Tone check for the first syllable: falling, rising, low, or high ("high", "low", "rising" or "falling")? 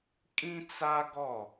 high